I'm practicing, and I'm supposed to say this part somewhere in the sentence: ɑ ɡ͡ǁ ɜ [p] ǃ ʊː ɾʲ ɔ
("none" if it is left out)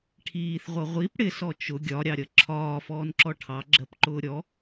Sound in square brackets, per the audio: p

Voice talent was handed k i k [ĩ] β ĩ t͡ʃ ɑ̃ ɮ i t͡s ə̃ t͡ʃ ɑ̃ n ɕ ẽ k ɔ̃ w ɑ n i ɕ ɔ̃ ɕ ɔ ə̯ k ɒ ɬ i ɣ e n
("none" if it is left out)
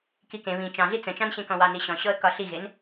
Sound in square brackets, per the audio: ẽ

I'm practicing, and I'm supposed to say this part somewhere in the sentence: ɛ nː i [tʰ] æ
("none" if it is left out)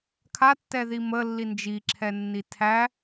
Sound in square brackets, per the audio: tʰ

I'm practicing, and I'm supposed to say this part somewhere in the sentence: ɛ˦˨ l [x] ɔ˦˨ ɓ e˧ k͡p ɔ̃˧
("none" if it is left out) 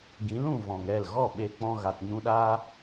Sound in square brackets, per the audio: ɣ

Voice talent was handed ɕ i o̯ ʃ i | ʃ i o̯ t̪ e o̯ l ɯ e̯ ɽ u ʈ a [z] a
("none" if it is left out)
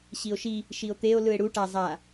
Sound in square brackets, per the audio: zˤ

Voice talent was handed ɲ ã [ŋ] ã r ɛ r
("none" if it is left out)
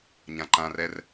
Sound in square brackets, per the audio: ǃ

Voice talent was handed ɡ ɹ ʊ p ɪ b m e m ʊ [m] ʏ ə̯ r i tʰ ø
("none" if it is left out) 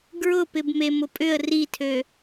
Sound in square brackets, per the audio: pʼ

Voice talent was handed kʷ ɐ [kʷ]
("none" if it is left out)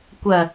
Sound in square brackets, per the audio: none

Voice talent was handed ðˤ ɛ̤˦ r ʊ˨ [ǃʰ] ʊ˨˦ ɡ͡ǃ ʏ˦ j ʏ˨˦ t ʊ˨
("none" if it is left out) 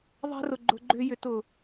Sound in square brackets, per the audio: ɡ͡ǃ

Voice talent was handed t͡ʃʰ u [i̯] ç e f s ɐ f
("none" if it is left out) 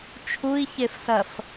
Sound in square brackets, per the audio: i̯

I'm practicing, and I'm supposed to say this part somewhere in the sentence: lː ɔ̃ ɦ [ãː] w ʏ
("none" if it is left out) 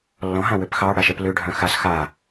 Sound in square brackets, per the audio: ã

